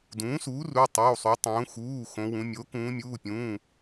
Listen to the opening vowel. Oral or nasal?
nasal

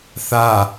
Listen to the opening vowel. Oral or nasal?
oral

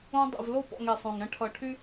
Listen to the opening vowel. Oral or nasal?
nasal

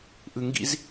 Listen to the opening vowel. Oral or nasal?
oral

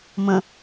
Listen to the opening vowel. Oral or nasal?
nasal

